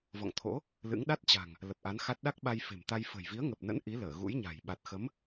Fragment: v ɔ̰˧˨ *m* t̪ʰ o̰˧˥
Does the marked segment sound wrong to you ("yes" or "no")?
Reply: yes